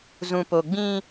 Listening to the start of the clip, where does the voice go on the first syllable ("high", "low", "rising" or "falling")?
low